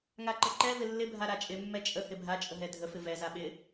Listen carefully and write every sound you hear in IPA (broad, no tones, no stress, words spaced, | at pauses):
ŋaǃəǃɛ vɪlːɪ bʱaɾat͡ʃʼɪ mːɛt͡ʃʼə hɪbʱa t͡ʃʼəɦɛdʱə fɪvɛ zaɓɪ